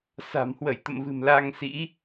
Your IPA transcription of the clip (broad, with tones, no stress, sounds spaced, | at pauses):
s a̤˨˩ m h w ə˧˩ j t̪ ə̰˧˨ m v ɨ̤˨˩ m l a˧ ŋ s ḭ˧˥